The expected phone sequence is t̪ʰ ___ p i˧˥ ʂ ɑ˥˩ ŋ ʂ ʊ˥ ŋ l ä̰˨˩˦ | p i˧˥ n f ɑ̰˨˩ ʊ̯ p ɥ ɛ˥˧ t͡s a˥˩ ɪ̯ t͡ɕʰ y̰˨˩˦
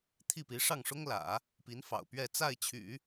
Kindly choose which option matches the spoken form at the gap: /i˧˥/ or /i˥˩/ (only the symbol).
i˥˩